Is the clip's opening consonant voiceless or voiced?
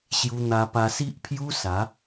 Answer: voiceless